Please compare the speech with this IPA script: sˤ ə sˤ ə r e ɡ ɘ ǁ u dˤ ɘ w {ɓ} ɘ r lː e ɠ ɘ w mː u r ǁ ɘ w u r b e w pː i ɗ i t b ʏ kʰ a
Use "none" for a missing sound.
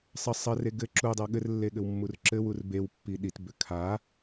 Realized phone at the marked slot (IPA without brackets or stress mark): ɠ